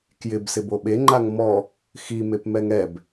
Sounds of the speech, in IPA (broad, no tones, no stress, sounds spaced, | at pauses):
k j ɪ b s ɪ b o ɓ e ŋ͡ǃ a ŋ m ɔ | x i m e p m ɛ ŋ ɛ b